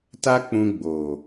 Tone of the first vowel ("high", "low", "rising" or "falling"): high